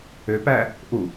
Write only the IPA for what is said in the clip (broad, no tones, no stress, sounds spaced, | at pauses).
ø p æ | ʔ u